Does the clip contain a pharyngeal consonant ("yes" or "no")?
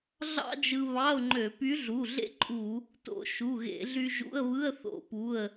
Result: no